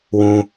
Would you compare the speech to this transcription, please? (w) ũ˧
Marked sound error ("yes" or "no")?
no